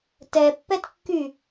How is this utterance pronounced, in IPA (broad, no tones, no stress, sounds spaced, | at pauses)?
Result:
t ɛ pː ɛ t kː y